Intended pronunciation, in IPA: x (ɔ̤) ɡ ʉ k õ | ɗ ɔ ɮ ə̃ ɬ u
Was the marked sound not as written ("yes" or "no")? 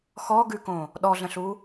yes